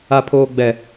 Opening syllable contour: low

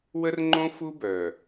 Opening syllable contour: high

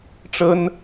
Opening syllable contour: high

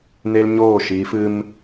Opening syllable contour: high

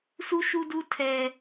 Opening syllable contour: high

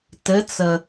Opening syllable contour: rising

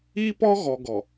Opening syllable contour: high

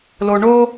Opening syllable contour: low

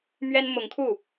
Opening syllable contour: high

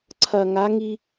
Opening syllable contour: low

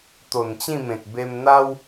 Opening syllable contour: low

